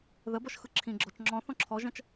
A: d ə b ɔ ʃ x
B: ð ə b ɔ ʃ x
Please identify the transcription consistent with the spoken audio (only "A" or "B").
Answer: B